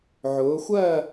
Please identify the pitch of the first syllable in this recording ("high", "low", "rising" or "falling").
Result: rising